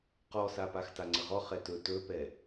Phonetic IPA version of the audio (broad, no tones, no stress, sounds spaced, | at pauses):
q ɔ s a p a x t a ŋ͡ǀ ə ʁ ɔ χ ɛ t ɵ t ɵ p ɛ